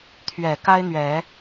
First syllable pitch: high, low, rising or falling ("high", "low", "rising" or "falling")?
low